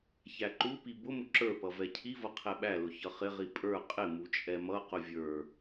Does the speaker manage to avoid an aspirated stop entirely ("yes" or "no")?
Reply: no